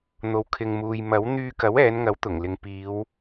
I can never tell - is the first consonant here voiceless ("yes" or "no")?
no